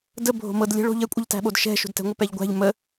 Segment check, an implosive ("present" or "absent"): present